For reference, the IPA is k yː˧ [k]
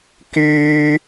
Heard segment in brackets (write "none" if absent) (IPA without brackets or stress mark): none